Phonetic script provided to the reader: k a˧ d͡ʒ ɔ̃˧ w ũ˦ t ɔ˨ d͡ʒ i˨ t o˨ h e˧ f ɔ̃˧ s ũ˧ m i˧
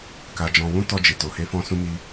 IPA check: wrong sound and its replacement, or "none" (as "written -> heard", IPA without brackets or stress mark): ɔ˨ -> ɔ˧